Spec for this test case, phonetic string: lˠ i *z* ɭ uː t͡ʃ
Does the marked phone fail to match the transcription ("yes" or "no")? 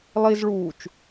no